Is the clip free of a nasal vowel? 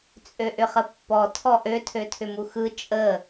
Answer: yes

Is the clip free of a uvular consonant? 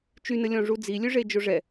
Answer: yes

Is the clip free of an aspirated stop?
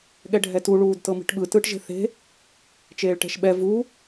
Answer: yes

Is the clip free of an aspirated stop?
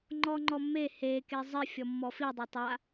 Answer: yes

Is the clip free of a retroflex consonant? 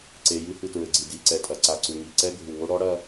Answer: no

